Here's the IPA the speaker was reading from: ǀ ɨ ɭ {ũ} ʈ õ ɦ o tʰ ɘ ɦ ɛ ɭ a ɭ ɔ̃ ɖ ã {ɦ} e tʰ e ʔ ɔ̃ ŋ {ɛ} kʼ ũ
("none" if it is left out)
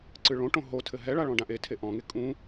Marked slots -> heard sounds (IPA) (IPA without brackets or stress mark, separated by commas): õ, ʔ, e